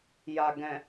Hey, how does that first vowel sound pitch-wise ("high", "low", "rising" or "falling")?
low